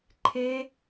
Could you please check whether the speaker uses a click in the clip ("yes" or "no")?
yes